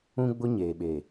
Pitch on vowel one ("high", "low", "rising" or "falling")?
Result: high